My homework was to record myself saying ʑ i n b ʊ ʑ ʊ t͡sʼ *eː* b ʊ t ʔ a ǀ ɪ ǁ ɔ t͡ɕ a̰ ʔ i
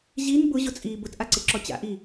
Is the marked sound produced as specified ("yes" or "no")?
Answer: no